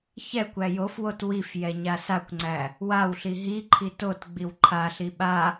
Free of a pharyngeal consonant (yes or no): yes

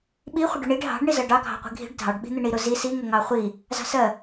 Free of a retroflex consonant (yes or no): no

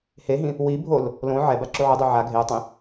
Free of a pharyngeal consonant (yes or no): no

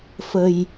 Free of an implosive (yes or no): yes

